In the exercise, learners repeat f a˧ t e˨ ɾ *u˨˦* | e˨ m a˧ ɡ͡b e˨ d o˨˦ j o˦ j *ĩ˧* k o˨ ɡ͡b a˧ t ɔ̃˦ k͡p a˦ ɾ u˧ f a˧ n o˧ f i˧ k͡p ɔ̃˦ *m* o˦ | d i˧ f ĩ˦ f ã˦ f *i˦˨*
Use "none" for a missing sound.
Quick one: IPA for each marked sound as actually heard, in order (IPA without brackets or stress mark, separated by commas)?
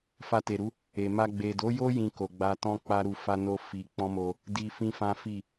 u˨˦, ĩ˧, m, i˦˨